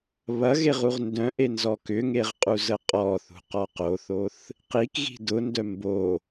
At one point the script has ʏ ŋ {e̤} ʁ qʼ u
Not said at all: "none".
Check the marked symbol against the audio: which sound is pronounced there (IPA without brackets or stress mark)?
e